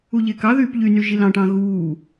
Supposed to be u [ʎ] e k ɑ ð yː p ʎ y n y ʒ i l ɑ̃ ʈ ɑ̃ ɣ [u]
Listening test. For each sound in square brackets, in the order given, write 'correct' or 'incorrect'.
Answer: correct, incorrect: uː

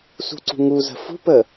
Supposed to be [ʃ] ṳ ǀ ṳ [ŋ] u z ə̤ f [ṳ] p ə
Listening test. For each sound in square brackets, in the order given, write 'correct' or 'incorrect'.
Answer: incorrect: s, correct, correct

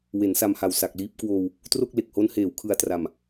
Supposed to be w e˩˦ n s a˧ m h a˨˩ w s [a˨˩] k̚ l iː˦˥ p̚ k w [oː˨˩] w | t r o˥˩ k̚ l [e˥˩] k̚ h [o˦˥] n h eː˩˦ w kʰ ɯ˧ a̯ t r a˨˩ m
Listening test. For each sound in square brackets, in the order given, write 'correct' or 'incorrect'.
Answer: correct, incorrect: oː˧, incorrect: e˨˩, correct

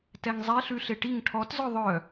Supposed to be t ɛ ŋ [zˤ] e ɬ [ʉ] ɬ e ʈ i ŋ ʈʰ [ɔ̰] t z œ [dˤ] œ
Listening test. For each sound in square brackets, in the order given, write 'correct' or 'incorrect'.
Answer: correct, correct, incorrect: ɔ, incorrect: ðˤ

